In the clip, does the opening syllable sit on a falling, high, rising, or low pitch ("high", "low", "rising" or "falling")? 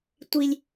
low